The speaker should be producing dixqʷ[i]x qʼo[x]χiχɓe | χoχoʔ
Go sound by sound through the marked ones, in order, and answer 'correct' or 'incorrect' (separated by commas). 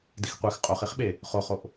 incorrect, incorrect